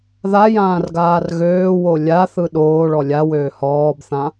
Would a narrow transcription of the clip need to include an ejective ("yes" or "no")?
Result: no